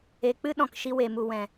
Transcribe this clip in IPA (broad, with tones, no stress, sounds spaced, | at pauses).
e˨ k͡p ɨ˦ ɗ ɔ̃˨ k ʃ i˧ w e˨ m u˨ w ɛ̃˨